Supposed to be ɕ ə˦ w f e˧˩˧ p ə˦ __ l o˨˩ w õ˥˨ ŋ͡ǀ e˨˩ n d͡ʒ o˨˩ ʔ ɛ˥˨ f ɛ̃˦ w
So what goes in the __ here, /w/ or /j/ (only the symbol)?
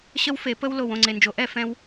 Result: w